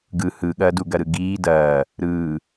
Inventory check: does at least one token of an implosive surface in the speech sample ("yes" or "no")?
yes